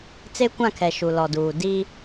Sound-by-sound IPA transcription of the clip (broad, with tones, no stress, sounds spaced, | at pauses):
t͡s e˦ kʷ ã˦˨ kʰ ɛ˨ ʃ u˨ l ɔ˨ d uː˨ d i˦